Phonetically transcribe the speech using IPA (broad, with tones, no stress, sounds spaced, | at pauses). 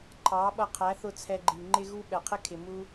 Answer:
ǃʰ ɑ˨˦ ɓ ʌ˧ qʰ æ˨˦ θ ʊ˧ t͡sʰ ɛ˧ ɡ͡ǃ i˨ ŋ͡ǃ ɪ˦ ɣ u˦ ɓ ɛ˨ qʰ ɪ˦ kʰ ɪ˨ m u˧